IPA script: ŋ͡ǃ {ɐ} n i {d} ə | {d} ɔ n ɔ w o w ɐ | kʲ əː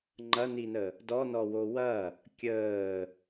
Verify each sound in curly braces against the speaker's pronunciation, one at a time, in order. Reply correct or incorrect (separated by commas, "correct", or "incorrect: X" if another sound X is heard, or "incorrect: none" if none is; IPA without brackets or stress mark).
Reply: correct, incorrect: n, correct